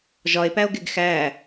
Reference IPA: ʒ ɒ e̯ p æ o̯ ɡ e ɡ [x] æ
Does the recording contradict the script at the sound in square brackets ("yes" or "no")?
no